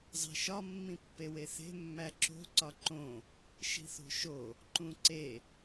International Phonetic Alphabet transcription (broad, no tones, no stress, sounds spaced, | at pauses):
zˤ e̤ ʃ ɒ mː ĩ pː e w e θ e̤ mː æ ǁ o̤ ǀ ɒ ǃ õ | ʃ i̤ θ o̤ ʃ o | ǃ ũ ǀ e